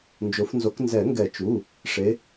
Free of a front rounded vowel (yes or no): yes